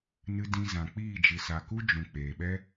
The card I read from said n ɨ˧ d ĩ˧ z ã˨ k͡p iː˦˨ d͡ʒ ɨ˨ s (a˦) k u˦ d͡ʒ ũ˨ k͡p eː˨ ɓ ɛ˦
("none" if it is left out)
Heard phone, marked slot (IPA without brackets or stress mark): a˨